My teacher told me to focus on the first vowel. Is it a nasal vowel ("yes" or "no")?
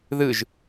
no